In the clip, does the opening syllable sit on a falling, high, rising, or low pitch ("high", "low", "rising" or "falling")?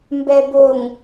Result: low